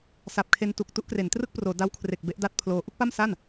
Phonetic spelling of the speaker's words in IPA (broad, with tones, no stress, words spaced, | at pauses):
sa˨˩p̚kʰe˧ntu˨˩k̚ tu˦˥ʔkre˩˦n trɯ˥˩k̚proː˩˦ da˦˥wkʰre˨˩k̚ be˦˥ʔda˥˩t̚pʰloː˦˥ ʔu˥˩k̚pa˥˩msa˥˩n